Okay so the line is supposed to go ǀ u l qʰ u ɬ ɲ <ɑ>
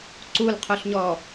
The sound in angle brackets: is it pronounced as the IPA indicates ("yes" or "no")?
no